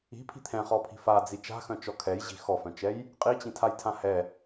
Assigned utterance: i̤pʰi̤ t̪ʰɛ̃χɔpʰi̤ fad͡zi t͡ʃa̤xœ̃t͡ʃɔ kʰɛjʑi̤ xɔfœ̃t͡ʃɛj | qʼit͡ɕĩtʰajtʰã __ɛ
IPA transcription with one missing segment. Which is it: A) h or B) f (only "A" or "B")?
A